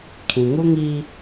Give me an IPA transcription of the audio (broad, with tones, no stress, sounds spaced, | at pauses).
kʰ ĩ˨ ŋ u˦ ŋ iː˦